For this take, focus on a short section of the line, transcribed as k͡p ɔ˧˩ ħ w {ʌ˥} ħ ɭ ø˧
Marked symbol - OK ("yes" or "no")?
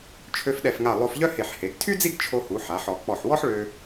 no